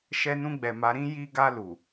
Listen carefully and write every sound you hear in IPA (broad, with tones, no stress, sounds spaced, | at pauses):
ʃ ɛ˧ n ũ˧ ɡ͡b ɛ˨ m a˨˦ ɾ ĩ˦ j i˧ ɡ a˧ l u˨